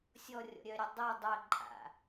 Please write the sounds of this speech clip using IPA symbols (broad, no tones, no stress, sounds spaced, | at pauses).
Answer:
sʲ ɔ rʲ ɔ̰ ɾʲ œ ɾʲ ɵ dˤ ɛ dˤ œ ǃʼ a̰